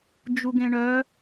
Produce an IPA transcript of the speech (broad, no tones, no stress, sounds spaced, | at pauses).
d͡ʒ u ɡ ẽ ɳ œ